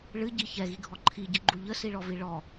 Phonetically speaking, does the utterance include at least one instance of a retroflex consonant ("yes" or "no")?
yes